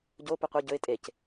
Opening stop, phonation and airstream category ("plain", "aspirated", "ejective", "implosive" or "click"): plain